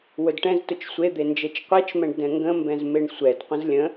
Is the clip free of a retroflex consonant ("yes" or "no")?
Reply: no